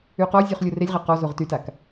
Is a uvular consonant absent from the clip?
no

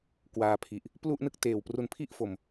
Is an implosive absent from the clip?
yes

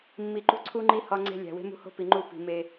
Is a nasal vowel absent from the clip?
yes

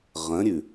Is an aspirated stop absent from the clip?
yes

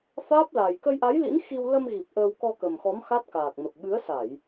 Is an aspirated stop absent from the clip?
yes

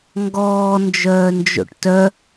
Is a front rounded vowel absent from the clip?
no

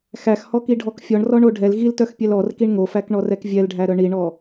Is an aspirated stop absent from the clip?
yes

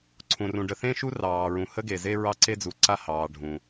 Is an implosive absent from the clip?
yes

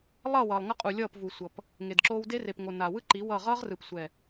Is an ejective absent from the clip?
no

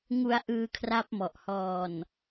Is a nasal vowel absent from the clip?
yes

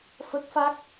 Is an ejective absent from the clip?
yes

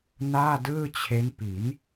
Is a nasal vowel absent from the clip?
yes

